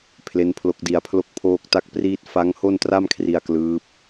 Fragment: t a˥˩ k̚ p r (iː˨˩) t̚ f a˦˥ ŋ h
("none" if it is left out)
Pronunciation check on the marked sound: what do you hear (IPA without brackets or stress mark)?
iː˥˩